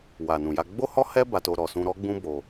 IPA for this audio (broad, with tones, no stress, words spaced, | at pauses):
wa˨nũ˨ja˧ ɡ͡bo˦hɔ˦hɛ˦ ba˧to˧ ɾɔ˨sũ˧ɾɔ˦ ɡ͡bũ˦bo˧